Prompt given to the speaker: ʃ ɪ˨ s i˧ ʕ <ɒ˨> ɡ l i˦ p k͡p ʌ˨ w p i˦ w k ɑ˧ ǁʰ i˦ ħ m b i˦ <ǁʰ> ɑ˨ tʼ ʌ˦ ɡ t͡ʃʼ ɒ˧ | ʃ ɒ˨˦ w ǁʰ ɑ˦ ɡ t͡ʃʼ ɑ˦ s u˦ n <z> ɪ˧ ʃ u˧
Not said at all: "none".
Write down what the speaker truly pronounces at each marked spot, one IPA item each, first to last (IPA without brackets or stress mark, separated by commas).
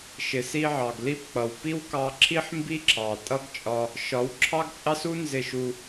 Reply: ɑ˨, ǁʰ, z